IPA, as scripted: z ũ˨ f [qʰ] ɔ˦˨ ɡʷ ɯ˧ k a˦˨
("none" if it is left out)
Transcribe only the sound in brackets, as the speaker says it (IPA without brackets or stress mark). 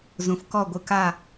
k